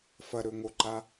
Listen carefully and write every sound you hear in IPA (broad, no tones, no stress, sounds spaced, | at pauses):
f ɐ ɾ ɵ ŋ o ǃ a